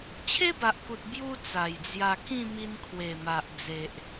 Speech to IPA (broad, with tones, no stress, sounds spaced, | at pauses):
t͡ɕʰ e˦ b a˨ ʔ k u˨ t̚ b j u˦ t͡s a˨˩ j d͡z j a˧ k ĩ˥˧ m i˧ n kʰ w e˨˩ m a˨ ʔ d͡z e˨ ʔ